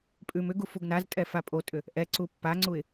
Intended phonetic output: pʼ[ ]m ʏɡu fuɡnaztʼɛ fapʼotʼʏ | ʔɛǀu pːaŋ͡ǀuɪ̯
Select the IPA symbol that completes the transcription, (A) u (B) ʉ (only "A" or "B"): B